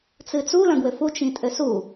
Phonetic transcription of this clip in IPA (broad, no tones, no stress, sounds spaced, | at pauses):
t͡s ɨ t͡s u l ɐ̃ ɡ w ɘ f u t͡ʃ ĩ tʼ ɘ s u